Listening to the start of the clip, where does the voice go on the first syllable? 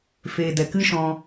low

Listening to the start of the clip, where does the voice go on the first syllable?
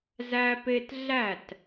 high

